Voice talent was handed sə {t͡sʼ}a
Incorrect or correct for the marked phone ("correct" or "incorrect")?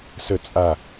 correct